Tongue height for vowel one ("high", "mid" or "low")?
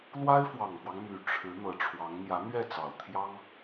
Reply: low